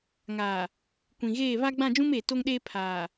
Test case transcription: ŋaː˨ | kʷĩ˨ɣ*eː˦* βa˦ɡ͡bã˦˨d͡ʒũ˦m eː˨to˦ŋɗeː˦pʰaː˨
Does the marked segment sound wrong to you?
yes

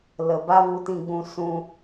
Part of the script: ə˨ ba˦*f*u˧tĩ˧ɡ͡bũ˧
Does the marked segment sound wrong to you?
yes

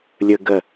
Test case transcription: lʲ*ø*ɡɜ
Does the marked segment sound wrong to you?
yes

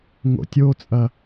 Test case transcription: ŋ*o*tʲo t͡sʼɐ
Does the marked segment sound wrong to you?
yes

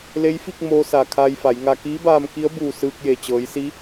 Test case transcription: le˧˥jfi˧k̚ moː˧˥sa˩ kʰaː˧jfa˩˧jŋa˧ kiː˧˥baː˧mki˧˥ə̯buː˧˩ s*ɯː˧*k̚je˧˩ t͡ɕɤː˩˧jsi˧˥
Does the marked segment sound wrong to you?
no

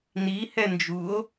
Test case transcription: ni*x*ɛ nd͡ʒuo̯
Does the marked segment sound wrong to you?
yes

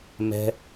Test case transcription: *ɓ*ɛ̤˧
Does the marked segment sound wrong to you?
yes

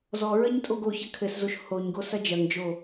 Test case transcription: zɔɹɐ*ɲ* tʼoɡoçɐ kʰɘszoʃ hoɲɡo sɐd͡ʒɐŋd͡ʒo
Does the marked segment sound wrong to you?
no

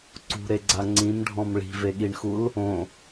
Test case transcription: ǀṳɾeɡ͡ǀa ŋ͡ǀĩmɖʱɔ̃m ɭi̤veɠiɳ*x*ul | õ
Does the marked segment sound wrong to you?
no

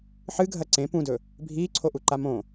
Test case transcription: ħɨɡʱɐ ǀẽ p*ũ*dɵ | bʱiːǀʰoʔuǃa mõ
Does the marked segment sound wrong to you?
no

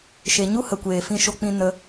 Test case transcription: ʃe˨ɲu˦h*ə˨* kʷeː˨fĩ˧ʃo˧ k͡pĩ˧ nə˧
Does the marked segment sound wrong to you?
no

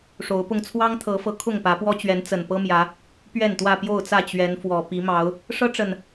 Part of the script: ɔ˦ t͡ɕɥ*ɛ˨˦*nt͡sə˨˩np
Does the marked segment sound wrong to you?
no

